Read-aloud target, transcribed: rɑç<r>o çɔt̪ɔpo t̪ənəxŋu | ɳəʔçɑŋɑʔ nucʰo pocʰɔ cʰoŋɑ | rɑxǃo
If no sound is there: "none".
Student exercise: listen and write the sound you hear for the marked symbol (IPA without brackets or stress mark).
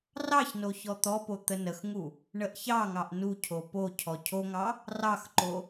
n